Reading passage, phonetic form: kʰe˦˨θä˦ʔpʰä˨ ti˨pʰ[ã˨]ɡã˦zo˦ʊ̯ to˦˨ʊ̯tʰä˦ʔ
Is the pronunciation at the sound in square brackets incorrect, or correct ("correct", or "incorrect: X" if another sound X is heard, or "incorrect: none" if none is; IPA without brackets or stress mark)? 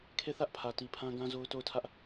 incorrect: ã˦